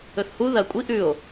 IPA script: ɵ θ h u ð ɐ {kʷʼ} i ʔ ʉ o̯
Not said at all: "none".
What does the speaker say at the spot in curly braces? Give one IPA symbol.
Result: kʷʼ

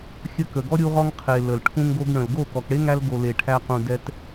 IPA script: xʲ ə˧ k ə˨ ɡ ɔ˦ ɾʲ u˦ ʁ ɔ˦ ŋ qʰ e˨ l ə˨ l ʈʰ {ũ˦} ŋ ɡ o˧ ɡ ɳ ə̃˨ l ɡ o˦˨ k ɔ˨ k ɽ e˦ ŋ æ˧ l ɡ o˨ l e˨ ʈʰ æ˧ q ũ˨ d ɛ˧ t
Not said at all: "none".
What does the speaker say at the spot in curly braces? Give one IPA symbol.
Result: ũ˦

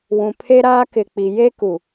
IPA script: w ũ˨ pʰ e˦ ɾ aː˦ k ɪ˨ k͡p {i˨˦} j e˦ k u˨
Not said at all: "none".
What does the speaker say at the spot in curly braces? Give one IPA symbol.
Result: i˨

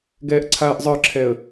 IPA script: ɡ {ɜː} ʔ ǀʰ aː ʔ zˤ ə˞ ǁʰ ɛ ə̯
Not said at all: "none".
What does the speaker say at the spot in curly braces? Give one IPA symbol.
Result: ɛː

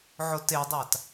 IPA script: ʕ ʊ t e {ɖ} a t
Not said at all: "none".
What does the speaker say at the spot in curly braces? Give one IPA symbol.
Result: dˤ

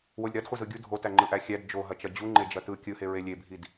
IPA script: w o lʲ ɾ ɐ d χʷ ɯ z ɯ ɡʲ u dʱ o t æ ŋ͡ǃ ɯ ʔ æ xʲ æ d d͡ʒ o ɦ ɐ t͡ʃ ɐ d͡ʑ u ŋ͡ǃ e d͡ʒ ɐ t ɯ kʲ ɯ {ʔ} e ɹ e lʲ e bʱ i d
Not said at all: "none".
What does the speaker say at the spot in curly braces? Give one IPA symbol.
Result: h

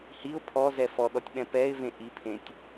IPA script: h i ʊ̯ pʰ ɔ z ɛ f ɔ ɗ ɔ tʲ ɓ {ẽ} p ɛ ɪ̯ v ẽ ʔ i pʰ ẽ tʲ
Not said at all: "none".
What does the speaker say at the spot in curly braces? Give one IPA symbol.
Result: ɛ̃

